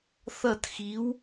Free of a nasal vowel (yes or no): yes